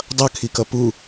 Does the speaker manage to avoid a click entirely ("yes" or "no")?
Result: yes